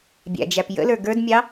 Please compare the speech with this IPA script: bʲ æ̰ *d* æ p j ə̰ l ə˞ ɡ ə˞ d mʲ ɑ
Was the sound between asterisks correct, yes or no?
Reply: no